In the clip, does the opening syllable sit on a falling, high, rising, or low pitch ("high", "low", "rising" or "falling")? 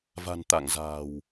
low